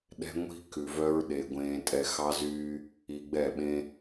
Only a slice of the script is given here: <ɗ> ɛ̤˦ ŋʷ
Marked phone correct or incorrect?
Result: correct